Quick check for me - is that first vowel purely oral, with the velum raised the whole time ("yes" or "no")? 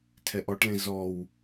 yes